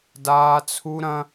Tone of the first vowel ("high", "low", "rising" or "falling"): high